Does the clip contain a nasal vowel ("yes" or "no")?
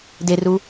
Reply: no